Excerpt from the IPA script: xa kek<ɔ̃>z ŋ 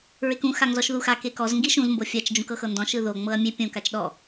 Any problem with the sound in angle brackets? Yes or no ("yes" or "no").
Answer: yes